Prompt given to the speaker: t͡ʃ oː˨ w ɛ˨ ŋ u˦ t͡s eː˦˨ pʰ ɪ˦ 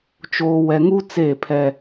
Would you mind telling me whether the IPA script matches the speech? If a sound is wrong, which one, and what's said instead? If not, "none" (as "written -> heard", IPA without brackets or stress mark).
ɪ˦ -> ɛ˦